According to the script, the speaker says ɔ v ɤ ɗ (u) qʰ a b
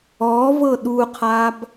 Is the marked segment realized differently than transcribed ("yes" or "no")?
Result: no